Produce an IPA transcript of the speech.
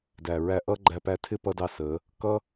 d æ˨ ɹ æ˧ ʔ ʌ˦ ɡ͡ǃ æ˧ p æ˧ tʰ ɪ˦ p ʌ˧ d ɑ˧ s ə˨˦ | k ʌ˦

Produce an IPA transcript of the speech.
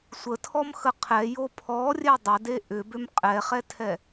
sʷ ə tʰ ɔ m x ə qʰ ɛ j o pʰ ɔ rʲ ɛ dˤ ə d e ʔ ʏ b ʏ m qʼ ɛ χ ɛ tʰ ɛ

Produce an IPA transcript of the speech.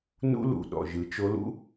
n ṵ˥ l ṵ˧˩ ɗ ɔ̰˧˩ ʒ ɯ˩˥ t͡ʃ o˧˥ l ṵ˥

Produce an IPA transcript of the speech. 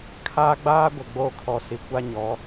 kʰ aː˦ ɡ͡b aː˦ ɡʷ ɪ˨ ɡ͡b o˦˨ kʰ ɔ˨ s i˨ kʷ a˦ ɲ ɔ˨˦

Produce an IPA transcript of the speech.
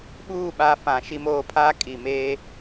ɓ uː˦˨ ɓ a˨˦ f ã˨ ʃ i˦ m oː˦ pʰ a˦ kʼ i˨ m eː˦

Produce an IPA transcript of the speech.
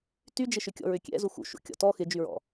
t y d͡ʒ ɪ ʃ ʏ kʲ ɔ̰ ɹ ʏ kʲ ɛ̰ z u x ṵ ʃ ṵ kʲ ɔ̰ t ɔ x ɪ d͡ʒ y ɹ ɔ̰

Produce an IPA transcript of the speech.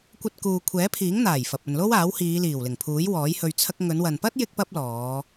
kʷ ɐ˧ t̚ k uː˨ kʷʰ ɛː˨˥ pʰ iː˨˥ ŋ n̪ aː˨˩ j f ɐ˨ p̚ ɵ˨ n l o˥ w aː˨˥ w h iː˨˧ l iː˨˩ w l ɪ˨˩ ŋ pʰ uː˨˥ j w ɔː˨˥ j h ɵ˧ ɥ t͡sʰ ɐ˥ k̚ ŋ ɵ˨˧ n w ɐ˨ n p ɐ˥ t̚ j ɪ˥ k̚ p ɐ˥ p̚ l ɔː˨˧

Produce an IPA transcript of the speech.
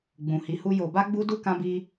ɡ͡b ũ˨ h i˨˦ h u˧ j o˨ b a˧ ɡ͡b u˧ d u˦ k ã˧ b i˧

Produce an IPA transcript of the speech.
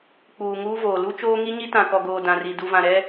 k͡p uː˨ ŋ uː˦ v oː˨ l u˦ t͡ʃ oː˦ ŋ i˦ ɲ i˦ t ã˨ k ɔ˨ ɡ oː˨ d ã˨ r i˨ d u˨ v ã˨ ɾ ɛ˦

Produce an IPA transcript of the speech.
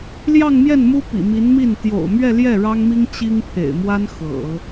l j ɑ˥˧ ŋ m j ɛ˥˩ n m u˥ p ḭ˨˩ m i˧˥ n m i˥˩ n t̪ j o̰˨˩ ʊ̯ m ɥ ɛ˥˧ l j ɛ˥˩ ɻ ɑ˥ ŋ m i˥ ŋ t͡ɕ i˥ ŋ pʰ ḛ˨˩ ɪ̯ m w a˥ n x ɤ̰˨˩˦

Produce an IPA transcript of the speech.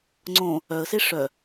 ŋ͡ǀ õ | œ ə̯ s e ʂ œ

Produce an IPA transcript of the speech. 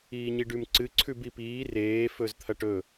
iː ɲ i ɖ ʉ m ǀ ɨ ǀʰ ʉ b i p iː r eː f ɵ z t̪ʰ ɐ ʈ ɵ

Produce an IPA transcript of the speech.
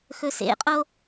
x ɵ s ḛ qʼ o

